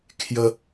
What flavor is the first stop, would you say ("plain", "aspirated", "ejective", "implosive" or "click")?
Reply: aspirated